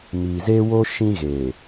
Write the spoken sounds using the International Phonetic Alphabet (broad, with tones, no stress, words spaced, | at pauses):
miː˨zeː˦wo˦ ʃĩ˦ɣe˨